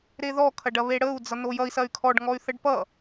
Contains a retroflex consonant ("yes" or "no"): yes